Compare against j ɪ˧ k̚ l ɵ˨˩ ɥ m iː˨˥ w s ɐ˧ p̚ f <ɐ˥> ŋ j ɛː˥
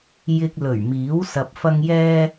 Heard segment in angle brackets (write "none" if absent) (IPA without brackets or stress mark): ɐ˥